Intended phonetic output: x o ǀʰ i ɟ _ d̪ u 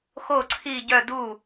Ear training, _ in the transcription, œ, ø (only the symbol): œ